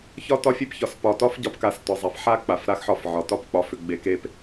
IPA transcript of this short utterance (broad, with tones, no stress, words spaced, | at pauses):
çɒ˦tɒ˦fʲe˦pçɒ˨s pɒ˨tɒ˦fɟɒ˨˦p ka˨stɒ˨zˤa˨f ħa˦ k͡pa˨fɾa˦xħɒ˦˨fʕɒ˨ tɒ˦p k͡pɒ˨ fʏ˨ɡ͡be˨ ke˦p